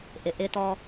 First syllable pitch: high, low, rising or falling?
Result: low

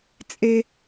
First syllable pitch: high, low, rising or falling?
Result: high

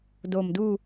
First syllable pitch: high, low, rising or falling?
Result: low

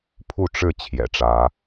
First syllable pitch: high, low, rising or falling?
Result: falling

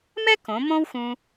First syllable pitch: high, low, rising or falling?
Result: high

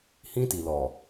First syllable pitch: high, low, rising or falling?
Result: high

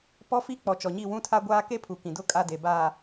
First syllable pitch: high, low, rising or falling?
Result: high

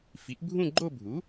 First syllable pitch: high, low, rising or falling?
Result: rising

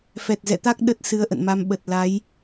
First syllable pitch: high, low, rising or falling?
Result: low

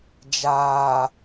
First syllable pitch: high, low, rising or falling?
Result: low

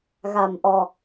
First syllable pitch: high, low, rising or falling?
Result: low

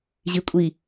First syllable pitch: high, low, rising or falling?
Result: low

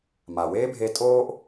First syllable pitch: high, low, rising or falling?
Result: low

